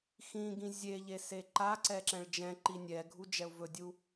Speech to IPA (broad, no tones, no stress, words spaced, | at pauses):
xĩɡĩ zʲeʎe seǃaǀɛ ǁɛ̃ɭd͡ʒɛ̃ǃi nʲɛɡʱu d͡ʒɛʊ̯vɵdʲu